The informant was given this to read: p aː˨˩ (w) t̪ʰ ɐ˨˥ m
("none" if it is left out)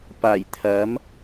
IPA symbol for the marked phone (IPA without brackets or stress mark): j